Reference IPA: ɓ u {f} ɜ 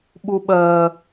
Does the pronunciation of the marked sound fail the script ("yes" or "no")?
yes